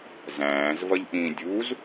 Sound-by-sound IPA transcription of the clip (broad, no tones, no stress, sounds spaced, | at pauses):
z æ̃ː z v ʌ ʎ ʔ ĩː dʲ u z